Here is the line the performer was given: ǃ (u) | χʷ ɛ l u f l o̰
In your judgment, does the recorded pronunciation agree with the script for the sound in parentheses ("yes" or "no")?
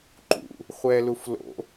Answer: no